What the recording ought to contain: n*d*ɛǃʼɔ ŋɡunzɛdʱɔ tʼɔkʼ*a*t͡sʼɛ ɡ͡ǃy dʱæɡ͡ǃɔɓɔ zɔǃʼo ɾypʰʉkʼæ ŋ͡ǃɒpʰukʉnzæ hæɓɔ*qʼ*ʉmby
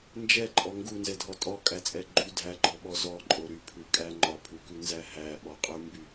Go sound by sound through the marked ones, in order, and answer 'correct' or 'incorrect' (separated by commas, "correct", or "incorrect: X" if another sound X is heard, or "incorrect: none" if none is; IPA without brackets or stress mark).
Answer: incorrect: d͡ʒ, incorrect: æ, correct